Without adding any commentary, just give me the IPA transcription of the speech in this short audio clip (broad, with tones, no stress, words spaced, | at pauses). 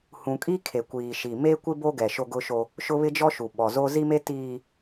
hũ˨kʼi˦ kʰe˨kʷiː˨ʃi˨ me˦kʷɪ˦ bo˦ɡɛ˨ ʃo˦ɡʊ˦ʃo˦ | ʃʊ˦βɪ˦ d͡ʒɔ˦ʃu˨ ɓɔ˨zo˦ zi˦me˦ tiː˦